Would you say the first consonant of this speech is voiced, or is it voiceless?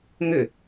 voiced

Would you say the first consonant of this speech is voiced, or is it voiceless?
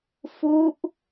voiceless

